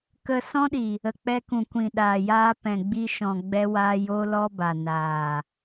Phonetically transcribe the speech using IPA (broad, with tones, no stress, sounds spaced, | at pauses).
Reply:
k ə˧ s ɔ̃˦ ɗ i˨ | ə˨ k͡p ɛ˧ k ũ˨ kʷ ĩ˨ ɗ aː˨ j aː˧ p ɛ̃˨ ɡ͡b i˧ ʃ ɔ̃˨ ɡ͡b ɛ˦ w aː˦ j o˦ l ɔ˦ b a˨ n aː˨